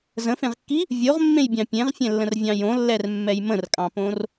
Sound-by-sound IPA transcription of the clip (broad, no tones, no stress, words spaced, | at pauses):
zə̃fẽʁkːi | vʲoʁmːẽjbʲɑ̃ pʲẽʁfʲɛ̃lːə̃rvʲɑ̃ jõlːɛrmːɛj mə̃rkʼɑ̃põr